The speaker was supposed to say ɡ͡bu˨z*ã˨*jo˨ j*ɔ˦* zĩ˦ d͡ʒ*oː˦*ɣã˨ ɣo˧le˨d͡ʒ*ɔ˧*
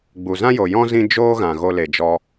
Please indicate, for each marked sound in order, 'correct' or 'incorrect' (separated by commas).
incorrect, incorrect, correct, correct